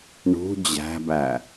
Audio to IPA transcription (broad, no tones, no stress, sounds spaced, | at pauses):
ɳ ṳ d͡ʑ æ̤ b æ